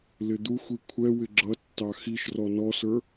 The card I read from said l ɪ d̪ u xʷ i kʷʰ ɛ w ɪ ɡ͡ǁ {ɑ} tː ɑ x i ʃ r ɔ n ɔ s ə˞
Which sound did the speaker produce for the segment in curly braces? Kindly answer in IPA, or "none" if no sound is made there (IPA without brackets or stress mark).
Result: ʌ